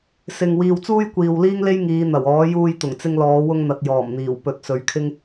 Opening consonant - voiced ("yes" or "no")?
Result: no